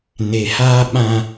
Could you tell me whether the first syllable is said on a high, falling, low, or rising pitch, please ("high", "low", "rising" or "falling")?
low